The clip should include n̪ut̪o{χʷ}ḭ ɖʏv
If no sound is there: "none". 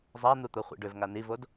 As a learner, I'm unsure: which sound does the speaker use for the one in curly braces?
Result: χʷ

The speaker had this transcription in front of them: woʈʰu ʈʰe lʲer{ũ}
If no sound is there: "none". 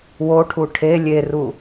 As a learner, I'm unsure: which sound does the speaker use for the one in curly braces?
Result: u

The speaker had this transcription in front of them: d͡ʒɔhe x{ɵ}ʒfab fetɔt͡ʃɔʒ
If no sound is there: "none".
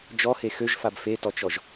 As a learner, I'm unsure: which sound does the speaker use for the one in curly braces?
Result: ø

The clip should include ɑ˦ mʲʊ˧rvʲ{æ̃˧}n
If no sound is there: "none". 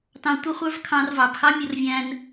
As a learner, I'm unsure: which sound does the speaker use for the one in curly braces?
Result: æ̃˧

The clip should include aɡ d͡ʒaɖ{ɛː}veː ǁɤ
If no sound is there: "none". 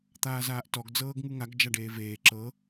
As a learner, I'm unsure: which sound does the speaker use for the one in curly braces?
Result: eː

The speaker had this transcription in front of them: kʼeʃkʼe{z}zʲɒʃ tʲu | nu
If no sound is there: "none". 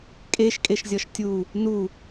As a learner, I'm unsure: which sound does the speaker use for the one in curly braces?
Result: ʃ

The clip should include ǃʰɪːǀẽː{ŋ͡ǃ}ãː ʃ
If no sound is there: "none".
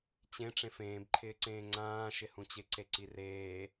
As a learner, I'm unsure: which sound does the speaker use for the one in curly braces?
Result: ŋ͡ǀ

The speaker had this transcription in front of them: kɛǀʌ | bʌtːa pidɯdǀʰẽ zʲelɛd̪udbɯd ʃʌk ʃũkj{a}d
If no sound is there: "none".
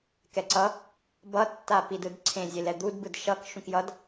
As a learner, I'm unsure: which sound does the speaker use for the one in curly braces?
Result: ʌ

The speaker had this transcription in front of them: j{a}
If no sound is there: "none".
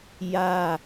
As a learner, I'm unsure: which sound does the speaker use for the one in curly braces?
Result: a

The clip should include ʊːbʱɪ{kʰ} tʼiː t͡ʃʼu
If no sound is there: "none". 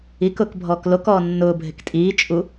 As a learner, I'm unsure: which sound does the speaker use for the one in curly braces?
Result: k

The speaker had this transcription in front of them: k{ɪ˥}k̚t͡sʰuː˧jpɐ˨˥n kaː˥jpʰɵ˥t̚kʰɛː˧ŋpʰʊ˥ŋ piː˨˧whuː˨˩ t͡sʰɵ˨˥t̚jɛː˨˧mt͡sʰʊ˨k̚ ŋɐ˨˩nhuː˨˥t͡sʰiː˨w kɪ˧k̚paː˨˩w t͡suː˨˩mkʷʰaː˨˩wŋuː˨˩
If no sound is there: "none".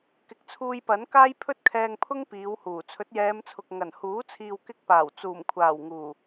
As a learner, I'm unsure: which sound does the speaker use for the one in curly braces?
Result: ɪ˨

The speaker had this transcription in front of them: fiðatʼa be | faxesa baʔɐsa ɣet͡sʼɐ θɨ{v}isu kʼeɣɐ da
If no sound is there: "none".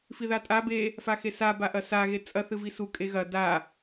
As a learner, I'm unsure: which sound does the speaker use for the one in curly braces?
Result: v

